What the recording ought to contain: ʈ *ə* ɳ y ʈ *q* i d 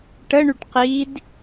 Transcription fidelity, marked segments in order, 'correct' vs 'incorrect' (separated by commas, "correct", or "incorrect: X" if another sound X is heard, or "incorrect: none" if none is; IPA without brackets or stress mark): correct, correct